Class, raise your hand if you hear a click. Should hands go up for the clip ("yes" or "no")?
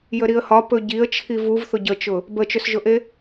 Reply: no